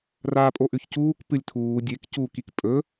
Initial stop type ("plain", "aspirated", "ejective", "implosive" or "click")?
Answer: ejective